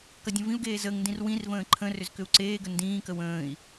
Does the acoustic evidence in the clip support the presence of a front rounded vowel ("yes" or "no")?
yes